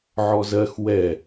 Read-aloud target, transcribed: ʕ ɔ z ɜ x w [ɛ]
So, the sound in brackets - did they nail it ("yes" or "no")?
yes